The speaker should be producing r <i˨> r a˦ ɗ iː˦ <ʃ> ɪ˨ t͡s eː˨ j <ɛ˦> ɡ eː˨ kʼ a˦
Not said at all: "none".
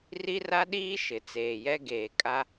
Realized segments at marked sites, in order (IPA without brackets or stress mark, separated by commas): i˦, ʃ, ɛ˦